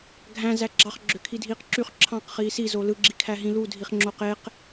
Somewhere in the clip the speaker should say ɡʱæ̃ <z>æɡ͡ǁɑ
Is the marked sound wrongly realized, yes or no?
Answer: no